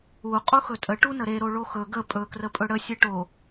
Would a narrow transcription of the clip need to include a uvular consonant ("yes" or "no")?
yes